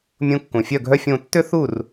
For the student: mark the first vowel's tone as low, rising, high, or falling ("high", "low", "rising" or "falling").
rising